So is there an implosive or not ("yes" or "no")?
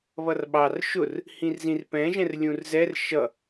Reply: yes